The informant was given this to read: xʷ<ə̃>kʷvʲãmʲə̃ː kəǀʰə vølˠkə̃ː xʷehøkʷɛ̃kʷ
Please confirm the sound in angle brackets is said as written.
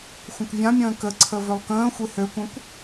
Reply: yes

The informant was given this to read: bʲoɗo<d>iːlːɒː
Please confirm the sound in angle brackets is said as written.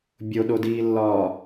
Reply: yes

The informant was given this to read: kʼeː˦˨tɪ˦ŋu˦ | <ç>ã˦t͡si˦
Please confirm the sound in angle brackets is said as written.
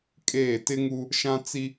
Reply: no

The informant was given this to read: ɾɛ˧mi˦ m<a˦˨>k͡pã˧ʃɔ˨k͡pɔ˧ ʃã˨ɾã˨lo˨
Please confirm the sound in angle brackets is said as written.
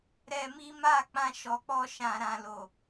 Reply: yes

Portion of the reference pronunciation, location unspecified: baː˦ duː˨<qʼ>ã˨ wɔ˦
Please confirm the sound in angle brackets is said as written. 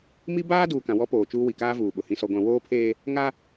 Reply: no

